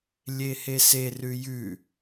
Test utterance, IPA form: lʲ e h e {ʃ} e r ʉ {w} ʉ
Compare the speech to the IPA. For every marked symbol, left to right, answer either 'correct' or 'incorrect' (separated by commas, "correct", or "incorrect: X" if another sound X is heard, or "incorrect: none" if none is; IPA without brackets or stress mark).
incorrect: s, incorrect: j